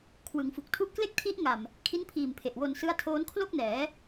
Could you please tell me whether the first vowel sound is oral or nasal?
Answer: oral